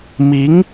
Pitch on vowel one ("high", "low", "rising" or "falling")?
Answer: rising